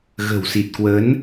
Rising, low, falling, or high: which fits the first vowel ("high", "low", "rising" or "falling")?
low